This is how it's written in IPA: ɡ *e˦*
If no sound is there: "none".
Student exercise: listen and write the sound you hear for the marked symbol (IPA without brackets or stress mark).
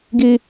i˦